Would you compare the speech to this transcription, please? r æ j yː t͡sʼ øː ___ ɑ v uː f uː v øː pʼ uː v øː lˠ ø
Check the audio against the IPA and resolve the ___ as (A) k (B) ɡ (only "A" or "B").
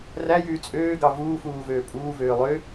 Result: B